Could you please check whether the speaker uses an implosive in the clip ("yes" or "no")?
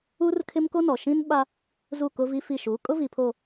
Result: yes